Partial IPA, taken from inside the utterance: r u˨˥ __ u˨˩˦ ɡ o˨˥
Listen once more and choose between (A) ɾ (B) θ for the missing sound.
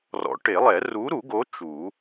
A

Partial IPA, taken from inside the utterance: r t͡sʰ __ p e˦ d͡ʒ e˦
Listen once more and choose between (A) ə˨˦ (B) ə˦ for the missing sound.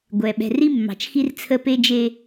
B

